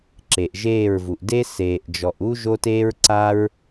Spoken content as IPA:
ǁe˨ʔʒeː˦˨ɹvu˨ʔ de˦ seː˨ʔd͡ʒɔ˨ʔu˦ ʒo˦teː˦ɹǀa˦ɹ

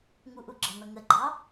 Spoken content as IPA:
ŋuʔuɡ͡ǁʌn̪ʌ ŋəɡ͡ǃɑ

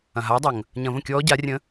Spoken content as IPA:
ɐ̃˩ɦa˩˥ə̯dˤɐ˩ŋ | ɲɐ̃˧˩˧və̃˥˩kʲɔː˧˥ ɟa˩˥rʲə̃˧˥

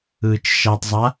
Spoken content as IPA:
ɯːt͡ʃʃatˤzˤa

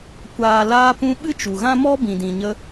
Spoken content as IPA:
kʷaː˨laː˧pũ˧ ɓɨ˦t͡ʃu˨ɣã˦mɔ˦ bĩ˨dĩ˨ɲə˧

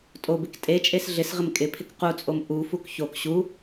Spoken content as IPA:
tʼobɪk tʼet͡ʃʼes ɮɪsʁɪm kʼɪpʰɪk qut͡sʼom ʔufuk çok ɕu

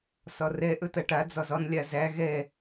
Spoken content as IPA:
sɒrɛ ʔɵtɐʈa d͡zɒzɒn lʲazæ ɣɛ

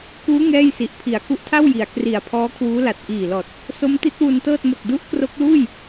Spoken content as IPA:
kuː˦˥ ŋɛː˥˩jsi˨˩ʔ pʰi˩˦a̯ku˦˥ʔtʰa˥˩wji˩˦a̯ kri˨˩a̯ pʰɔː˦˥kʰwuː˦˥la˨˩t̚ ʔiː˨˩lɔː˨˩t̚ | so˦˥mti˦˥t̚wu˧ntɤː˥˩t̚ mo˨˩k̚du˦˥ʔkro˦˥k̚luː˥˩j

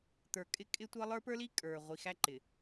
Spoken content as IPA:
t̪ə˞˨kʼɪ˦kʼɪ˦tʷʌ˦ lˠə˞˦pə˞˦li˦ kʼə˞˨ ʁʷi˨xæ˦ ǃɪ˨

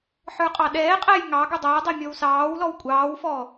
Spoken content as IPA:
ħə˞qʼɑɗɛːqʼæj ŋɑ ɡudˤʌːdˤɛ mʲɔwsɑːwlɔw kʷʼɑːwfɔː

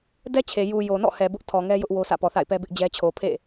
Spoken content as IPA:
dɛ˦t͡ɕʰe˨ ju˨ jo˨nɔ̰˦˨hɛ˨ bʊ˦ʔ tʰɔ˨ ŋɛ˦jʊ˦ʔ wo˦sä̰˦˨ pɔ˨θa̰˦˨ɪ̯pɛ˦ bɪ˦ʔd͡ʑɛ˦ t͡ɕʰo˨pʰḛ˦˨

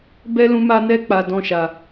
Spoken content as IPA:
bɛ˦ lũ˦ma˦ nɛ˦k͡pa˧ dɔ̃˦ʃa˧

